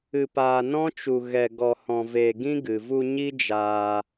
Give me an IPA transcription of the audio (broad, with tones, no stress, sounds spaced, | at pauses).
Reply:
ɨ˧ p aː˧ n ɔ̃˦ t͡ʃ u˧ ɣ ɛ˧ ɡ ɔ˧ h ɔ̃˧ v eː˧ ɡ ĩ˦ ɡ ɨ˨ v u˧ ɲ i˦ d͡ʒ aː˧